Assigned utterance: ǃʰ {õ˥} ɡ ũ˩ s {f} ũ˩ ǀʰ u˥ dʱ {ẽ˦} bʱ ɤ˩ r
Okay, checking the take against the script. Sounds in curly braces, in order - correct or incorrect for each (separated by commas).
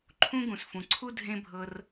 incorrect, correct, correct